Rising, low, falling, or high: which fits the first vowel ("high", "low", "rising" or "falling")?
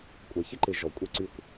low